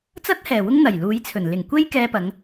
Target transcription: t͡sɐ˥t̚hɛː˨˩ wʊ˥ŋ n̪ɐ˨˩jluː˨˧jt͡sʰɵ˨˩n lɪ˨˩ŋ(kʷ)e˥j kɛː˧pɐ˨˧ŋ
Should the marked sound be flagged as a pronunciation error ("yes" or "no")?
no